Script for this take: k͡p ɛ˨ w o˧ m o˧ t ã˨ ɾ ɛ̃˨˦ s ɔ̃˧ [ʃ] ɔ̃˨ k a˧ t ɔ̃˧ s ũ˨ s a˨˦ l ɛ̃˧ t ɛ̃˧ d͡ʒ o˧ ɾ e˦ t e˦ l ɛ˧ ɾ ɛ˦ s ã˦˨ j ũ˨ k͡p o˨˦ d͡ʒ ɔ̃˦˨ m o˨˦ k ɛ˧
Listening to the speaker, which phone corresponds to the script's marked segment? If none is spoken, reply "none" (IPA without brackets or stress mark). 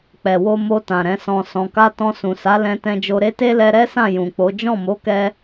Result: s